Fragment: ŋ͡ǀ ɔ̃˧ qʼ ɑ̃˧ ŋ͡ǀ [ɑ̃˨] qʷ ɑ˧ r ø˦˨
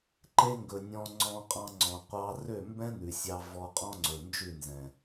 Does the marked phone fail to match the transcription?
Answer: yes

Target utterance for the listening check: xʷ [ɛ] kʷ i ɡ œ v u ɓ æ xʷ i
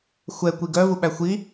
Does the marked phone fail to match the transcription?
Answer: no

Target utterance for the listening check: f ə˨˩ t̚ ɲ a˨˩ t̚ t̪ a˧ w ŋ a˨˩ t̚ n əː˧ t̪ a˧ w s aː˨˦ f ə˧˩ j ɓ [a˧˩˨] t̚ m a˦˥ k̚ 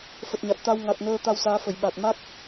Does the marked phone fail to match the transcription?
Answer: yes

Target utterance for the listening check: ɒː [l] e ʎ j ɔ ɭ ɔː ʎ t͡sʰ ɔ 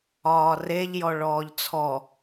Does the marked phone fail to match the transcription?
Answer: yes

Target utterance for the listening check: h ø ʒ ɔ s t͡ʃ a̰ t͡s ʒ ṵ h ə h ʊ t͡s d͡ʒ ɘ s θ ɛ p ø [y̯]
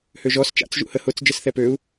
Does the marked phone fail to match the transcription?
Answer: yes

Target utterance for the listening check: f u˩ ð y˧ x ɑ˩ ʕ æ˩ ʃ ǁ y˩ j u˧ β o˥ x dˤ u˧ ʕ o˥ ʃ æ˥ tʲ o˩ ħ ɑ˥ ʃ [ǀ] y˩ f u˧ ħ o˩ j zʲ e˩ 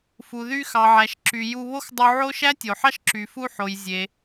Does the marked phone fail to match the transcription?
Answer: yes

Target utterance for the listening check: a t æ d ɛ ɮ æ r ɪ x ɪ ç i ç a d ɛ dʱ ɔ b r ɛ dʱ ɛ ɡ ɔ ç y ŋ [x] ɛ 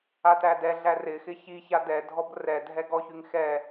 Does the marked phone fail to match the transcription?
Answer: no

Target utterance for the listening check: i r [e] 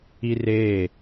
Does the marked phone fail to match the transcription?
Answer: yes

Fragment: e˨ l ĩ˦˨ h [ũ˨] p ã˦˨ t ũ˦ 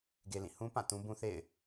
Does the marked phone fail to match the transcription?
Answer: yes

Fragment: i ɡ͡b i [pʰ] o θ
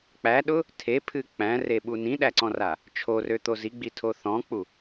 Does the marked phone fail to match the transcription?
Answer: yes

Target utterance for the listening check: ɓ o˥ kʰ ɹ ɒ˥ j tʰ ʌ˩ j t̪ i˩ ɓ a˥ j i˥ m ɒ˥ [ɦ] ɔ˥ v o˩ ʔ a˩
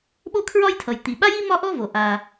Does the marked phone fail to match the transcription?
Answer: yes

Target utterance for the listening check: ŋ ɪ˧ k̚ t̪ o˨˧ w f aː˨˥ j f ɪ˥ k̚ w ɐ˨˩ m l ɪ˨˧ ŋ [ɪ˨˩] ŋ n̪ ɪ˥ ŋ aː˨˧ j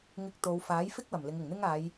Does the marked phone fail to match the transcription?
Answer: no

